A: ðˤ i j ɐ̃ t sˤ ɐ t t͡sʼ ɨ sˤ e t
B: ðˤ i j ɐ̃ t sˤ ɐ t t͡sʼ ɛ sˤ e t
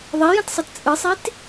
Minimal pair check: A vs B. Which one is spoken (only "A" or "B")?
A